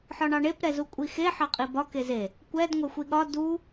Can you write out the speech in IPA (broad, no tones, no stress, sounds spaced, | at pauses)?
ħ ɒ ɳ ɑ ɳ e p ɾ ɛ z u kʷʼ i x e ħ ɑ qʼ i b ɒ k e z e | kʷ ɛ d ŋʷ ɛ xʷ i ɠ ɒ d u